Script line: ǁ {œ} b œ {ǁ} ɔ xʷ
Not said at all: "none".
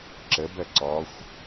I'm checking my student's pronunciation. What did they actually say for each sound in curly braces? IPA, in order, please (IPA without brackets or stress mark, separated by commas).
ə, ǀ